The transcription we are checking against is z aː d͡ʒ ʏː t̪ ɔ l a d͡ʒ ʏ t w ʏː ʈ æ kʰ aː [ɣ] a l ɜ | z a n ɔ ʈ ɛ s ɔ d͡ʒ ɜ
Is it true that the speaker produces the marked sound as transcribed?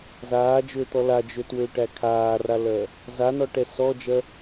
no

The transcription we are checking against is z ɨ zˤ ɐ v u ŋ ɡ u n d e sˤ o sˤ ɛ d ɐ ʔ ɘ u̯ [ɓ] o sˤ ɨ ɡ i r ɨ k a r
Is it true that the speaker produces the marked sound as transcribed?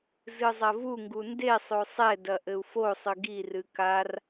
no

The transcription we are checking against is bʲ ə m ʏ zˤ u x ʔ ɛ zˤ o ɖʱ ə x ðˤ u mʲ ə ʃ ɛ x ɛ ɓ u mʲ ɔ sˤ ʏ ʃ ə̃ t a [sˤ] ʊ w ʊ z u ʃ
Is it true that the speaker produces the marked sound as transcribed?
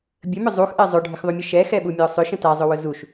no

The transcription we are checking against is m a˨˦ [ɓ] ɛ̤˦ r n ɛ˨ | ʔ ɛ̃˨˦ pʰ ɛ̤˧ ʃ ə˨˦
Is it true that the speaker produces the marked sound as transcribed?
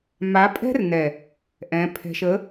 no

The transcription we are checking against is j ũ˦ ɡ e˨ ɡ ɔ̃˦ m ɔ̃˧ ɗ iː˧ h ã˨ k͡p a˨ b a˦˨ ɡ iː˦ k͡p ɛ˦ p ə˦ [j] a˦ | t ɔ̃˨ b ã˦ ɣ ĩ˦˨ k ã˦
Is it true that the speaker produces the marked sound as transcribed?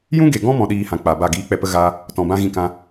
no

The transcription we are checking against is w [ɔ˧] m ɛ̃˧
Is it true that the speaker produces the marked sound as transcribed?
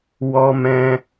yes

